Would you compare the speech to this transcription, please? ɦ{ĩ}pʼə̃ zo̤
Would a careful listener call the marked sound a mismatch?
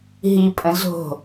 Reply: yes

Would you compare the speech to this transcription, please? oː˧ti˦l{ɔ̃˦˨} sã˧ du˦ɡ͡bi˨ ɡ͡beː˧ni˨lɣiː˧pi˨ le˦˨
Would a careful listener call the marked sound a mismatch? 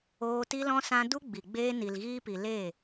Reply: yes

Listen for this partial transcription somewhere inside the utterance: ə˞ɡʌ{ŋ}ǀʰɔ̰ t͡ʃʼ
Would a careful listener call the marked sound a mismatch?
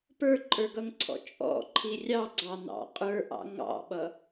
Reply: no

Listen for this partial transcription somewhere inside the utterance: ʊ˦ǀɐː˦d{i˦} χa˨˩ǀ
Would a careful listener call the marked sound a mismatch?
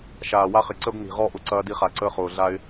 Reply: no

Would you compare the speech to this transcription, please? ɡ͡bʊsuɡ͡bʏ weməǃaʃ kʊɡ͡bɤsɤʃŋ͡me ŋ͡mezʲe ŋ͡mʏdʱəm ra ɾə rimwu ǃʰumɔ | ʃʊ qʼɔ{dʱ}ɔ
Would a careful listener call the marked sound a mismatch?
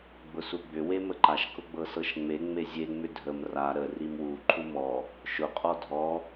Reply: no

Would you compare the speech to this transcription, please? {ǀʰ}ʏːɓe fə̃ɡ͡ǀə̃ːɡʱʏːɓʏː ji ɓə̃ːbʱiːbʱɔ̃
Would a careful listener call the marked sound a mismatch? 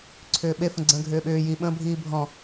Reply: no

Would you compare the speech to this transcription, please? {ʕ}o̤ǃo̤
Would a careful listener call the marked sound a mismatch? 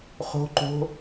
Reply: yes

